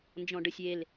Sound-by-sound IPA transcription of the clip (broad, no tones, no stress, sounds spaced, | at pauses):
n d͡ʒ ɔ̃ ɖ ə sʲ e l